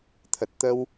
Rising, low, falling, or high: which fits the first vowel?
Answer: low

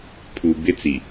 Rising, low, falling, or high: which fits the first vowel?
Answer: low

